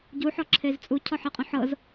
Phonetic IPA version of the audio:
ɟ u ħ ɔ ǁʰ e z t͡sʼ u cʰ ɔ ħ e qʼ õ ħ ɤ z

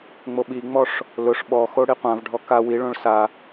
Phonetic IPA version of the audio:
ŋ͡m o ɓ i ŋ͡m ɔ ʂ | l ʊ ʂ ɓ ɔ x o ɽ i qʷ ã v ɖʱ ɔ k a w i ɭ õ ɭ s a

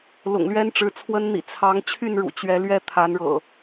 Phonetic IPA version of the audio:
l ʊ̰˨˩ ŋ l ɥ ɛ˦ n ʈ͡ʂ ɻ̩˨˦ t͡sʰ w ə˦ n n̪ ḭ˨˩ t͡sʰ ɑ˨˦ ŋ t͡ɕʰ y˥˨ n ɻ ṵ˨˩ t͡ɕ ɥ ɛ˨˦ l ɥ ɛ˥˨ t̪ʰ a˨˦ n ɻ ɤ̰˨˩

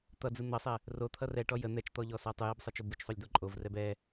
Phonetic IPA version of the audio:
t̪ ʌ d͡z ɯ n̪ ʌ sˤ ɛ | r o t̪ʰ ʌ r ɛ ʈ ɔ j ə n̪ ɛ t͡ʃ t̪ ɔ ʎ ɔ s a tˤ ɯ j ɛ b sˤ ʌ t͡ʃ o b ɯ t͡ʃ sˤ o lʲ d̪ ɔ ǃʼ o v r ɛ b ɛ

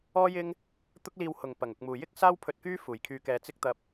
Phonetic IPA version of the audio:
ɔː˥ j ɪ˥ ŋ | t̪ ʊ˥ k̚ l iː˧ w h ʊ˨˩ ŋ p ɐ˨˩ ŋ ʊ˨ k̚ m uː˨˩ j ɪ˥ k̚ s aː˥ w pʰ ɵ˧ t̚ k yː˥ f uː˨˩ j kʰ yː˧ k ɛː˧ t͡s ɪ˥ k̚ t̪ ɐ˧ p̚

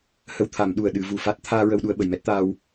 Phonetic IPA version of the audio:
h ə˧ w t̪ʰ a˨˩˦ m ɗ u˨˩ ə̯ ɗ ɨ˨˩˦ v u˨˩˨ f a˦˥ t̚ t̪ʰ aː˧ ɹ ə˧ w ɗ u˧ ə̯ ɓ ə˨˩˨ j m ɛ˦˥ t̚ t̪ aː˧ w

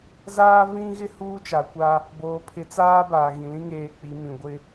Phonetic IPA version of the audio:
z aː˦ v ĩ˦ ɣ ɪ˦ h uː˦ t͡ʃ a˨ kʷ a˦ | b oː˨ pʰ ɪ˨˦ t͡s aː˦ b aː˨ ɣ ĩ˨ l ĩ˦ ŋ eː˨ k͡p i˨˦ m ĩ˨ ɡʷ ɪ˦

